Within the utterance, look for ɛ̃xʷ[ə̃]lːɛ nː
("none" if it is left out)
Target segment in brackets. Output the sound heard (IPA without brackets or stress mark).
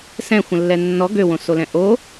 ə̃